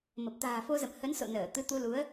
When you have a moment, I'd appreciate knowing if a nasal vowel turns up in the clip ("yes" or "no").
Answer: no